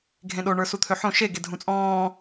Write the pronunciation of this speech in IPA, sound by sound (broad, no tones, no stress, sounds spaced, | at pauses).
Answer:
ɡʱ ẽ ɗ o ɳ ə˞ s u t̪ʰ ø ħ õ ʃ e ɡ e dʱ ũ t͡sʼ ɔ̃ː